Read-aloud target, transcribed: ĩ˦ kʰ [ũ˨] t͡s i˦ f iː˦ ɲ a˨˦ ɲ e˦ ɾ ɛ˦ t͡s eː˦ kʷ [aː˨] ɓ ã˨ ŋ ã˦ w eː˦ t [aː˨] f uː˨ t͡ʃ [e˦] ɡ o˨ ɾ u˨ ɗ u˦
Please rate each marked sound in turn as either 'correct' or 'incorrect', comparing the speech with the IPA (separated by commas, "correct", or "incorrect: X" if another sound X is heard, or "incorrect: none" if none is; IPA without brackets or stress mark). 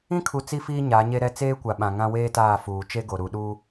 incorrect: u˨, incorrect: a˨, incorrect: aː˦˨, correct